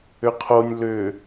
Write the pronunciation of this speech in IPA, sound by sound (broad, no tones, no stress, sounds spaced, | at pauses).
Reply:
ʏ qʰ o nʲ l ʏ